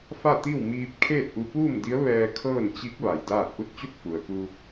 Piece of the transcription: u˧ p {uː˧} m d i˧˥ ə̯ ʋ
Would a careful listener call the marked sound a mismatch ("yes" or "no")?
yes